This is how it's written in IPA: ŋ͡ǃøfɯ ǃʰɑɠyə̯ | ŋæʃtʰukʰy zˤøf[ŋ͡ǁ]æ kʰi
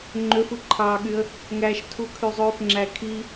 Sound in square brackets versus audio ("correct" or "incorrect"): correct